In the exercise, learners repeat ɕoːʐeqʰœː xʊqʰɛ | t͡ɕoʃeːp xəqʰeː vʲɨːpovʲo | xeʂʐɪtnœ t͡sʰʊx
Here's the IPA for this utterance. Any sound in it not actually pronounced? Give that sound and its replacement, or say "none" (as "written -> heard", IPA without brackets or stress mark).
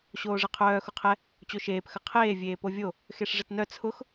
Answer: ɨː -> eː